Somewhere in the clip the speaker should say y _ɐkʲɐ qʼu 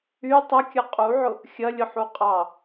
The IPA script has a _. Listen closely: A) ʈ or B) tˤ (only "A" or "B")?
B